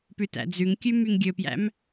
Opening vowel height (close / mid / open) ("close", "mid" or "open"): close